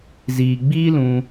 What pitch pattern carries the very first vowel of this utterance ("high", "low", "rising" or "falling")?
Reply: low